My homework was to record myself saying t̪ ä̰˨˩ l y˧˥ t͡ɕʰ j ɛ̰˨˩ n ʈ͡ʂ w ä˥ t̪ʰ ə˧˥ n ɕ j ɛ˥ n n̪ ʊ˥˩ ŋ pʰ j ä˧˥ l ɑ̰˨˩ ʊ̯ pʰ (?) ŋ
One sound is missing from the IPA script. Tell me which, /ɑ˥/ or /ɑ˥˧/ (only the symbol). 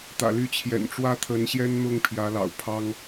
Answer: ɑ˥